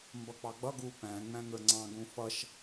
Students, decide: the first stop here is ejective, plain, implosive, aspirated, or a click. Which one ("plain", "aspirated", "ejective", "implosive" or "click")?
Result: plain